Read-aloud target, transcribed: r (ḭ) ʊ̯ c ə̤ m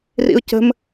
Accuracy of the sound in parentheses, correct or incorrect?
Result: correct